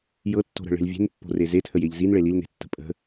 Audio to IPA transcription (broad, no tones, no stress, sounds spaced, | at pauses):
j ɤ tː o̤ ɾ ə̤ ɭ e̤ l vʲ e̤ n pː o̤ r e z e tʰ ə j e ʎ z i n ɭ e l i l n e̤ tː ə̤ pʼ ə̤